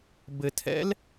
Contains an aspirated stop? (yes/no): yes